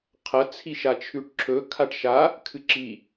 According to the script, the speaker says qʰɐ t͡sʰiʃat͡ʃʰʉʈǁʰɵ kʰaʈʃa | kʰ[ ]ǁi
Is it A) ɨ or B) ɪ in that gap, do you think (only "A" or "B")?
A